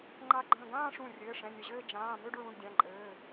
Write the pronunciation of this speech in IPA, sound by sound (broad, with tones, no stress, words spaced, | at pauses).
ŋ͡ǃa˧˩ɡ͡ǃə̃ː˧˩ɡãː˥˧ʂũ˧˩ rʲɘː˩˧˩ʂɛ̃˩˧˩nʲə˧˩ʑɘː˥˧ d͡ʒãː˩˧˩ mø˥˧ɖɹũ˩˧˩ɖdʲã˩˧˩ǃʼɘː˩˧˩